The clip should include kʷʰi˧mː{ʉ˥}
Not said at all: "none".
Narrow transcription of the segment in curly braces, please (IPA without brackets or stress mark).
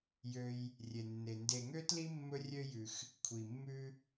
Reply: ʉ˥